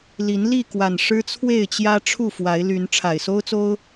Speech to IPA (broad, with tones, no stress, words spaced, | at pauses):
li˨˦n li˥˨kwa˨˩n ʂɻ̩˦t͡sʰwe˥˨ɪ̯t͡ɕjä˦ ʈ͡ʂʰu˥˨fwa˨˦ɪ̯ ly˨˦n ʈ͡ʂʰa˨˩ɪ̯so˦ʊ̯t͡so˦ʊ̯